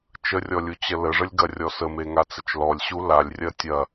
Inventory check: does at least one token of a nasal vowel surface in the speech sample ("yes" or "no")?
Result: no